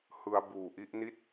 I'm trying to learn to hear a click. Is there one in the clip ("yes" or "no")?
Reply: no